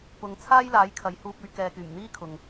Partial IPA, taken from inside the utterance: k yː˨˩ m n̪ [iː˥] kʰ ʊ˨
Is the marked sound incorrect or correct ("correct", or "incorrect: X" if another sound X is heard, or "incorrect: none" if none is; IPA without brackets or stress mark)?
correct